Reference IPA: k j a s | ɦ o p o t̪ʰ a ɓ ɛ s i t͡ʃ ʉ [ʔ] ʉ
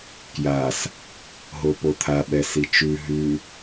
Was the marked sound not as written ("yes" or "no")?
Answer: yes